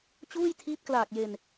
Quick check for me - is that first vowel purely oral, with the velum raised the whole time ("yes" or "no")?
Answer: yes